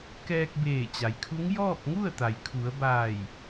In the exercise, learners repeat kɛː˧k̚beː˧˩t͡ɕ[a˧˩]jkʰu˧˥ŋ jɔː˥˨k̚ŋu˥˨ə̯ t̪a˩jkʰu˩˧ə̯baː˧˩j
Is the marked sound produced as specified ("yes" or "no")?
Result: no